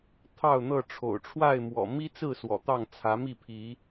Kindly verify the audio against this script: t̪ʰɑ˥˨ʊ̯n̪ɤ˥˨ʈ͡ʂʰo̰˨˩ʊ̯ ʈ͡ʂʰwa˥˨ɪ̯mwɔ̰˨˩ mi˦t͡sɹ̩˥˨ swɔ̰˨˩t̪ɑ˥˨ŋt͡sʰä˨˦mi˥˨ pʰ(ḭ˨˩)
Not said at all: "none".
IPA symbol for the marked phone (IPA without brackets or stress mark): i˨˦